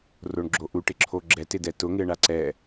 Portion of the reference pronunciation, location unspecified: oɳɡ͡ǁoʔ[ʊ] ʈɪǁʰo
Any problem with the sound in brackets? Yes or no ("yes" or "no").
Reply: yes